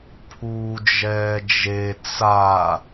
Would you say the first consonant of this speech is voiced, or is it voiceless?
voiceless